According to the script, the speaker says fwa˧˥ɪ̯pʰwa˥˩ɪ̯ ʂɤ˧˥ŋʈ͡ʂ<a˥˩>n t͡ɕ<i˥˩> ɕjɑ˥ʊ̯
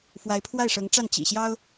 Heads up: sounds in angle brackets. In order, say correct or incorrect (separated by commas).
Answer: correct, incorrect